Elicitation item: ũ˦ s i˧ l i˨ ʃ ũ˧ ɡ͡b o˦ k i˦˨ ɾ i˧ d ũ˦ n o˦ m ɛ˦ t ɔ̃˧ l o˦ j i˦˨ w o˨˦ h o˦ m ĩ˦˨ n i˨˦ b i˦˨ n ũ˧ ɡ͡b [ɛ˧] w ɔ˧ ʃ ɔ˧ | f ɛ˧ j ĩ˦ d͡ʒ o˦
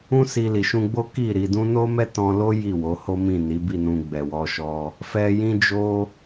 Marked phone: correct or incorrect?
incorrect